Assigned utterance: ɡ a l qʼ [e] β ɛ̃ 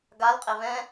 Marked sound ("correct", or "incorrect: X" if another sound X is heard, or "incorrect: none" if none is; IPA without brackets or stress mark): correct